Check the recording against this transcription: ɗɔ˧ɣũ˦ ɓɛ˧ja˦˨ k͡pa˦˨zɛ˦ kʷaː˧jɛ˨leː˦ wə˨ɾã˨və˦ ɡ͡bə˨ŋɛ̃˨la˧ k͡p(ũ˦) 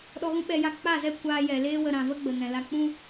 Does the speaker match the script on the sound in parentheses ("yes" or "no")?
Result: yes